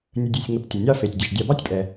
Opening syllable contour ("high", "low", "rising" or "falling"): low